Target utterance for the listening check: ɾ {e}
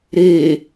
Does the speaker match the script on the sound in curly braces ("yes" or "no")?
yes